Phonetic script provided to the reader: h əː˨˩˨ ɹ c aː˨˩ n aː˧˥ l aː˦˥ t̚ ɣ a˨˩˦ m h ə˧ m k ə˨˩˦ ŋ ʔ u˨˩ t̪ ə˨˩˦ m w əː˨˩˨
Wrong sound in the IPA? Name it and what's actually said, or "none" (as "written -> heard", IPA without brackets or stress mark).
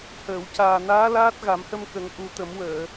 ɹ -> w